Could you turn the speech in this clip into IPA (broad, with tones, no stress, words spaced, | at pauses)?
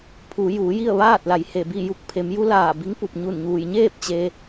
pʰu˩˧ juː˩˧ji˥˨ə̯ʋaː˥˨t̚la˩˧j he˧˩bi˥˨ju˧˥k̚ pʰe˩˧mju˧˥laː˧˩bi˧˥ŋ pu˧˩p̚ɲu˧˩nɲuː˩j ɲeː˥˨p̚ t͡ɕe˧